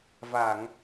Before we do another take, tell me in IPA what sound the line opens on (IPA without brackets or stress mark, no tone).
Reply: v